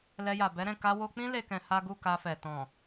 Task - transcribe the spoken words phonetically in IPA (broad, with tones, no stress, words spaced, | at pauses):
lɛ˧ja˨ bɛ˨˦ɾɛ̃˦˨ ka˧wo˧k͡pĩ˦ le˦kɛ̃˧ha˦ ɡu˦˨ka˧fɛ˨ tɔ̃˨